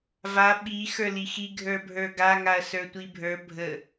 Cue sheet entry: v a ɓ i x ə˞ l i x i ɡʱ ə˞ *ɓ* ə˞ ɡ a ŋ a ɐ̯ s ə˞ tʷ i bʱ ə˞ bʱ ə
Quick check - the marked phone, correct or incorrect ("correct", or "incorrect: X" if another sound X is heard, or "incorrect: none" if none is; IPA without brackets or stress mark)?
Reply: incorrect: bʱ